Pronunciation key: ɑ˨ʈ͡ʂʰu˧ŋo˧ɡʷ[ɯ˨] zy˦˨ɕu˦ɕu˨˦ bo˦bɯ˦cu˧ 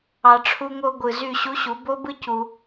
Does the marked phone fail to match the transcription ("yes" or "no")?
no